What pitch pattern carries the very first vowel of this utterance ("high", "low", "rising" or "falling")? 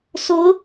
rising